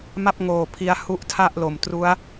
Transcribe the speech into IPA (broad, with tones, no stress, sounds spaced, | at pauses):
m a˥˩ p̚ ŋ oː˨˩ pʰ i˧ a̯ h u˦˥ ʔ tʰ a˥˩ ʔ l o˨˩ m t r u˦˥ a̯